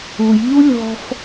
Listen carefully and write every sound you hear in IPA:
ujʎu lʲɔ̤f

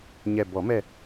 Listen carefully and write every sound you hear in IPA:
ɲɛ˨˩bɔ˨˩˦mɛ˦˨

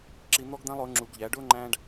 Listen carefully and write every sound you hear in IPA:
ǁi˧n̪ɔ˥ɡd̪æ̃˥lˠ ʊː˩˥ŋ͡ǁu˨˩˦ɡʎæ˩˥ɖʊː˥ ŋ͡ǃæ̃˥ɖ

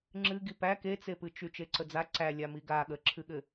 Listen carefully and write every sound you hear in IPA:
ŋ͡ǁɨɡi pæ ket͡sepɨt͡ʃy t͡ʃeǀəd͡za ǀæ lʲamiɡa ɠə ǁʰɨɠɘ

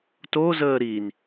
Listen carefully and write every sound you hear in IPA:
tozəː ɾin

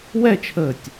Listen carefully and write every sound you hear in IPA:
wɛt͡ʃʰəːtʲ

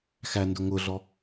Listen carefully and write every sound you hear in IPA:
xændʊ ŋʊɮɔ

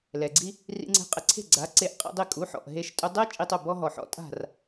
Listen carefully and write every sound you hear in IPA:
lɛ˩ɡ͡ǀi˧ | rḭ˧ŋ͡ǀe̤˧qʼɪ˧ǀʰe̤˥˩ ɡ͡ǀa˩˥ǀe˩˥ʔ qʼḭ˧dˤɪ˥˩ kʼu˩˥ħɔ̰˩ʔ ɦe˧ʃtʼʊ˧dˤɛ˥ t͡ʃʼi˧tˤʊ˥˩ bɔ˥ɦɔ˩ħɔ̰˥ tʼa̤˥˩r

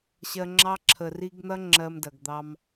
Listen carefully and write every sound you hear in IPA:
ɕɜ˧ŋ͡ǁɑ˦ ǁʰə˨ri˧ɡn̪ɐ˦ ŋ͡ǁɜ˧mdɐ˨ɡ d̪ɑ˧m

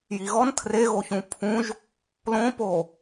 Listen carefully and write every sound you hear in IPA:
jiɣɔn tʰreɣo çũpʰũʒ | lõpo

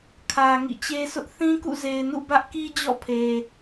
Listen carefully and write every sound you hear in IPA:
kʰä˨ ŋḭ˦˨t͡ɕe˦sʊ˦ʔ θĩ˦kṵ˦˨ze˨ɪ̯nṵ˦˨ bä˦ʔki˦d͡ʑɔ̰˦˨pʰe˨

